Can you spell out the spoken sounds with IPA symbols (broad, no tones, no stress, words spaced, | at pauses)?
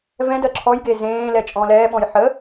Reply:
vɛ̃ dɜǁʰɔjɡe zẽː lɛt͡ʃʼɔ̃lɛːɓɔ̃j ħə